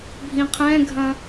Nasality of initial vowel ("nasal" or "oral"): nasal